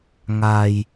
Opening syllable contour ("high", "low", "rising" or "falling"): low